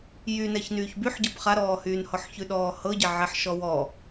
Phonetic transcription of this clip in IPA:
jynɛç nyːçbyħɟɤb χaɾɔːhyːnhɔħ çʉɗɔːhɤɟɛ ʕɛħʃɔwɔ

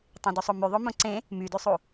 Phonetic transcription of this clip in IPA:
tˤẽdusˤomy ðˤomõǀẽ | mydysˤu

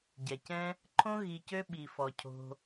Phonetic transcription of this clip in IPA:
ɟɛ˨cɛ̃˦ | ǃʰõ˦ ɣi˧cø˦ ɓi˨fɔ˨ cʰo̤˧

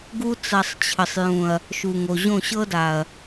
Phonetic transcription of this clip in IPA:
ɡu˦ t͡sa˧sˤt͡ɕʰə˨sˤjũ˨ɐ̯ | ʃu˨ŋo˨ ʑõ˦˨ɕɤ˦da˨ɐ̯

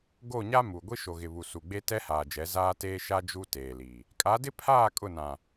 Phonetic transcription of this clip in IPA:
ɡo˦˨ɲa˦ mu˨ ɡʷi˦ʃo˨ɣɪ˨ βu˨su˨ɡ͡be˦ tɛ˦haː˨d͡ʒɛ˨˦ zaː˦teː˦ ʃa˦ d͡ʒu˦ teː˨li˨ | kʼa˨˦dɪ˦pʰaː˦˨ kʼʊ˦˨nã˨

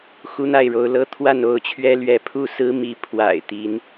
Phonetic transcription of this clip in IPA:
xu˦n̪a˥˨ɪ̯ɻo˨˦ʊ̯ lɤ˦t̪ʰwa˥˨n o˥˨ʊ̯t͡ɕʰɥɛ˦ lɥɛ˨˦pʰu˥˨ sɹ̩˦mi˨˦ pʰwa̰˨˩ɪ̯ t̪i˨˦n

